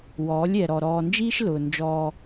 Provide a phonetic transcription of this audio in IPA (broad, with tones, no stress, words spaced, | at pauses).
wɔː˨˦lʲɛ˨ɾɔ˨ ɾɔː˨nd͡ʒiː˦ʃ lʊː˨nd͡ʒɔː˦